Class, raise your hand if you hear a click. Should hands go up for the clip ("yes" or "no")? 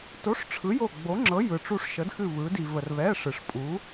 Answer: yes